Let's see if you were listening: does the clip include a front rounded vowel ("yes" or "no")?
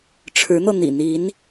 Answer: no